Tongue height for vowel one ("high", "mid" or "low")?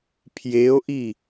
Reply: mid